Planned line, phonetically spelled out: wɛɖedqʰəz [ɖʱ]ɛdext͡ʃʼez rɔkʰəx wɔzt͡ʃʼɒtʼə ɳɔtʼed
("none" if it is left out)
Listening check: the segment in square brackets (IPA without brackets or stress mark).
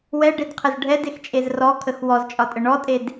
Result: ɖʱ